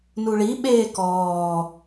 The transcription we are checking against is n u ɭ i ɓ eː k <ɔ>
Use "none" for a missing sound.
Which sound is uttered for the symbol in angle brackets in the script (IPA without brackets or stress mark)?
ɔː